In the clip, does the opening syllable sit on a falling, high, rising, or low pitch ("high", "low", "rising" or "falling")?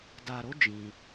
low